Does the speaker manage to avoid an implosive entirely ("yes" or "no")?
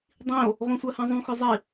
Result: yes